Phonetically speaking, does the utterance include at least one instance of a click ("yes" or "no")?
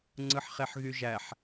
yes